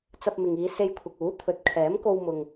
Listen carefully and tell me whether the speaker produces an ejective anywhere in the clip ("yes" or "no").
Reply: no